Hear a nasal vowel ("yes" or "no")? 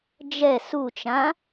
yes